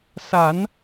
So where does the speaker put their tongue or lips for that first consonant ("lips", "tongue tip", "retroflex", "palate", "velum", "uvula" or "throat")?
tongue tip